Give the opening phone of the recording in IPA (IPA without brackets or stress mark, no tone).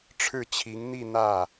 ʈ͡ʂʰ